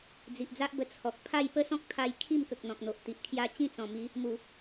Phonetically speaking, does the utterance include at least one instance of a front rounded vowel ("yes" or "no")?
no